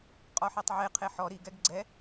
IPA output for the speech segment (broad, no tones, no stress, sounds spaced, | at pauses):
qʼ ɔ ħ ɛ tˤ ʕ e qʰ e ħ ɔ ɾ i ɡ ɛ ɡ ɡ͡ǀ ɛ